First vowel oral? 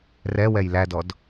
yes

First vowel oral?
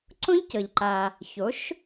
no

